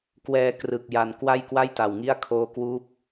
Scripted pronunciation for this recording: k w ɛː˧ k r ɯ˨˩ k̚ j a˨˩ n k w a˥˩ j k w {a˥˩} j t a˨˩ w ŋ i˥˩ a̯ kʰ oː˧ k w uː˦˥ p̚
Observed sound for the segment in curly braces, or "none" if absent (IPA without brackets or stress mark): a˥˩